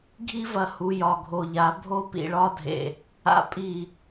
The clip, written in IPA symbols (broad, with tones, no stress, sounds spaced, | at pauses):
ɡʱ i˦ v ɐ˨ h u˨ j ɒ˨ ɡʱ o˨ ʎ a˨˦ bʱ o˦ p ḭ˨ ɭ ɒ˦ dʱ ḛ˨ | a̰˦ pʼ i˦˨